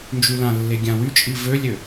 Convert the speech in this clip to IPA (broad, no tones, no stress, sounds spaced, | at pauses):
n d͡ʒ y l ã lː e ɡʲ ã w y t͡ʃʼ i v ø lʲ ø